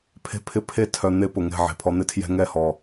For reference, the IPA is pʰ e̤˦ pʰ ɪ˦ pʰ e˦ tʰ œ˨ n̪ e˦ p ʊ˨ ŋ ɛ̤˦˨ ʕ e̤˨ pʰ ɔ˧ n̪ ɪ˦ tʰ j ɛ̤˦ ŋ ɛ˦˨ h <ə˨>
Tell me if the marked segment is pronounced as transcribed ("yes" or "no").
no